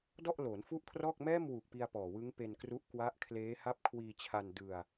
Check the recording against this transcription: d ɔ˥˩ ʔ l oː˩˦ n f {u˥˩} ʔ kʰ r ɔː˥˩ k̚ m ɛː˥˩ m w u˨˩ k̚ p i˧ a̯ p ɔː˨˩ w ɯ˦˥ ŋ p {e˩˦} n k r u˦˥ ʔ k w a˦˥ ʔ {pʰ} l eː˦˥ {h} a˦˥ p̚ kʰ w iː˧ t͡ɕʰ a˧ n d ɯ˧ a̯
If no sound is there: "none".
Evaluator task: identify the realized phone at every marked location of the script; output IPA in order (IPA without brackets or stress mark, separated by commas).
u˥˩, e˧, kʰ, h